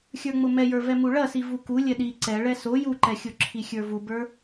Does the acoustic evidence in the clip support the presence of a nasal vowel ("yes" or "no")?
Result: no